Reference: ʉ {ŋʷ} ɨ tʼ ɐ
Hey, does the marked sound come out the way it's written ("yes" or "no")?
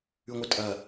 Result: yes